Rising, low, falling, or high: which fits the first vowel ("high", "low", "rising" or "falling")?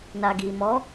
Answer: low